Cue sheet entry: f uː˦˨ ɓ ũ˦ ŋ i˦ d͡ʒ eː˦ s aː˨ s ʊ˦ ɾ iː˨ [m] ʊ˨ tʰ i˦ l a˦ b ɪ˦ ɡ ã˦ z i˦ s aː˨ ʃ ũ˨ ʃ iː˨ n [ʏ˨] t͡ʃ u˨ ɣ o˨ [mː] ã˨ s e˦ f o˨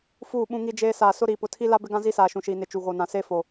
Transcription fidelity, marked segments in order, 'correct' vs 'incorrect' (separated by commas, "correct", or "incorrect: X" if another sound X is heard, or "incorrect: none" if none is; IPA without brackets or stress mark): incorrect: p, incorrect: ɪ˨, incorrect: n